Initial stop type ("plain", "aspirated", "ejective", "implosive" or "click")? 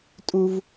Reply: ejective